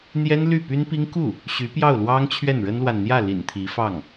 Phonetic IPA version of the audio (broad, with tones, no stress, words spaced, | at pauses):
n̪jɛ˥nly˥˩py˥npi˥ŋ ku˥˩ | ɕy˧˥pjɑ˥˩ʊ̯lwɑ˥ŋ t͡ɕʰɥɛ˥˩nɻə˥nlwa˨n n̪jä˥˩lḭ˨˩n t̪ʰi˧˥fɑ˥˩ŋ